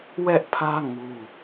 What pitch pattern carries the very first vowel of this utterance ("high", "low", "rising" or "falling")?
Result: high